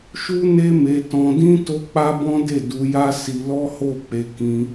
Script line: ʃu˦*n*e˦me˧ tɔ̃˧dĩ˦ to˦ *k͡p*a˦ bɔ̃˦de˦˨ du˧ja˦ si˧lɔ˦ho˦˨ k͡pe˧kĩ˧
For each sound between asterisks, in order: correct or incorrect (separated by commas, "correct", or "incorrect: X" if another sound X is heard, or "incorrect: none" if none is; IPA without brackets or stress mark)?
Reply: correct, correct